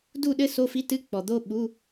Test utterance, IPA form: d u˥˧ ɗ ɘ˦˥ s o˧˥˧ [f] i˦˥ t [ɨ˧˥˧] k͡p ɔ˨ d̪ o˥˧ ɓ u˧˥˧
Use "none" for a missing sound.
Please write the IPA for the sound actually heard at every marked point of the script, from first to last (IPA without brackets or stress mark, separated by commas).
f, ɨ˧˥˧